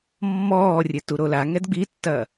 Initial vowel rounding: rounded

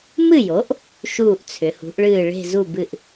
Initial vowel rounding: unrounded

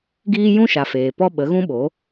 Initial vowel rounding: unrounded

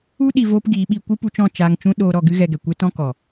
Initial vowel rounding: rounded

